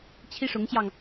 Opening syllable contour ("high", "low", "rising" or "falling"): high